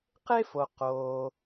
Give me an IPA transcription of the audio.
qe˥fo˨ qoː˨

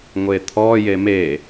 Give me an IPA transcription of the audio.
ŋʷet̪ʰɔ jeme

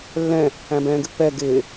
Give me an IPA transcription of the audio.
lːɛ̃ | æ̃bɛ̃ːɡɪpːɛ ɡɪː

